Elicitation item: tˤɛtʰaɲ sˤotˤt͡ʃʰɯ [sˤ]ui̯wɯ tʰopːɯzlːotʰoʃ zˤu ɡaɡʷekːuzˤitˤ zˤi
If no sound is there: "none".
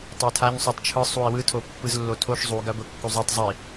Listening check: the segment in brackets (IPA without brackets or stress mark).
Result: sˤ